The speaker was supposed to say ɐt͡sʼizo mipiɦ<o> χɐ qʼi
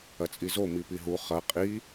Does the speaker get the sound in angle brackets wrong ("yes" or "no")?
yes